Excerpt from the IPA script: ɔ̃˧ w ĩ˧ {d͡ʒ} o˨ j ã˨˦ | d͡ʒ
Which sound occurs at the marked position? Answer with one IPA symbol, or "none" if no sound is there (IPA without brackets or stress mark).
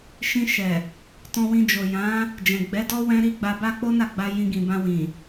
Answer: d͡ʒ